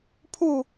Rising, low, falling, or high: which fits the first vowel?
falling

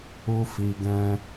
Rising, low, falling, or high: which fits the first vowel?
high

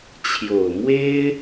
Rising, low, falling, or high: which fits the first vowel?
low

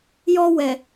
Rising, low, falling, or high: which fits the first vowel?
high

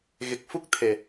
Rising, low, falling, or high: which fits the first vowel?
low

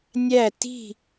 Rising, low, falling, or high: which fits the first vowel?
falling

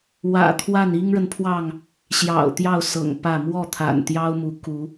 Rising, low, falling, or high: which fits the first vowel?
low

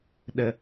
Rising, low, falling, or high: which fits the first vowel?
low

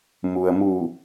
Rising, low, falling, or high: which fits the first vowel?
low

